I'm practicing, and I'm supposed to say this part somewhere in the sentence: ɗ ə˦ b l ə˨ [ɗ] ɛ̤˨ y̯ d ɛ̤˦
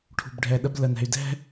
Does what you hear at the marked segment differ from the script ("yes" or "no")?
yes